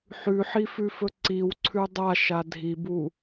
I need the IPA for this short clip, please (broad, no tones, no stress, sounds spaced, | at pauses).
ħ ʉ ħ i f ʉ f ɵ ǀ i w ǀʰ ʉ dˤ a ʃ a dʱ i b u